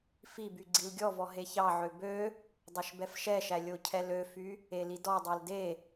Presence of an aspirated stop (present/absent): present